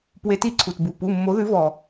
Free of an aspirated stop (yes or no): no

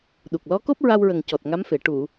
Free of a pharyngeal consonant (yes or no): yes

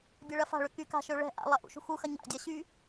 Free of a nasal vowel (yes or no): yes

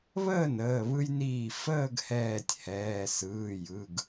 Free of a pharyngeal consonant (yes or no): yes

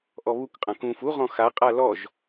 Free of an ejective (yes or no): no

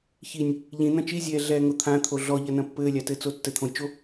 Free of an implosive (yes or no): yes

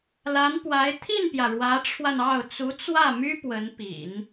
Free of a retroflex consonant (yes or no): no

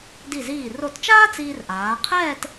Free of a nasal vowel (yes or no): yes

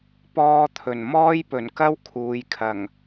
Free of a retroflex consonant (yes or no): yes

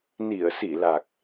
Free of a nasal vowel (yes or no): yes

